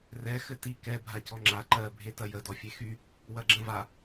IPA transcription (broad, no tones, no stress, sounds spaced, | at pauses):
r ɛ x ɘ t i k ɛ bʱ a c ɔ ŋ͡ǁ a ǃ ɜ bʱ e t ɐ j ə d ɔ fʲ e x y | w ɐ ɡ͡ǁ ə̃ v a